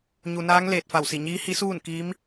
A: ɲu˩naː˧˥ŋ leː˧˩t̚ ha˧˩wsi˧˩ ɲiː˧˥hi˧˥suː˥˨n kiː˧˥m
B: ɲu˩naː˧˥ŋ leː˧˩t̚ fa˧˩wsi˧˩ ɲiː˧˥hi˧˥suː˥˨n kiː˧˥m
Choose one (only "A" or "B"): B